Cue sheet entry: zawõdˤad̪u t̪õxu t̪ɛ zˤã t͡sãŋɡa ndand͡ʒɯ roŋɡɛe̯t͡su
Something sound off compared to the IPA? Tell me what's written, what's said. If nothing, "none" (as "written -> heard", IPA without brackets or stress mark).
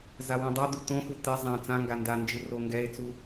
none